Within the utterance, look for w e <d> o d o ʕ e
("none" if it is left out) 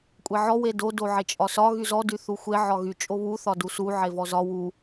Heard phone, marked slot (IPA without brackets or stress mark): d